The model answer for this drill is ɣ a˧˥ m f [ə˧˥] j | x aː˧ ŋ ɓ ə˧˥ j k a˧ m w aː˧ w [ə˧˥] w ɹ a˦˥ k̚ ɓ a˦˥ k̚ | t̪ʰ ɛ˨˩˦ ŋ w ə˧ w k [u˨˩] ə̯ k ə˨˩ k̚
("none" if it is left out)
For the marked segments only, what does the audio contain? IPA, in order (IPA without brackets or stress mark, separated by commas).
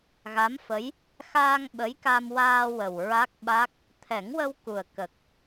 ə˧˥, ə˨˩, u˨˩